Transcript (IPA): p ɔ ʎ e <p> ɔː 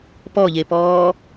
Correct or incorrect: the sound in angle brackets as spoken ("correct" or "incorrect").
correct